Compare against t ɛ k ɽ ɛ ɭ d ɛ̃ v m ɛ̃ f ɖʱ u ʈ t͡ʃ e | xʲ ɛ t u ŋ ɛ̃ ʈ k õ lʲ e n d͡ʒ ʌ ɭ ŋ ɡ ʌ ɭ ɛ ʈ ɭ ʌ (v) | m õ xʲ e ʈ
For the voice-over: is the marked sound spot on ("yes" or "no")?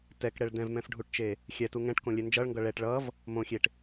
yes